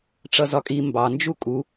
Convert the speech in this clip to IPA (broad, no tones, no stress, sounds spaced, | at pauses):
ʈ͡ʂ ʌ z ɒ kʼ i m b ɑ n d͡ʒ u kʼ u